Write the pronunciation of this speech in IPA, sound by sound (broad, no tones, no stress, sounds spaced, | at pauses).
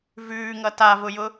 v ʉː ŋ ʌ t a v ʊ j ʊ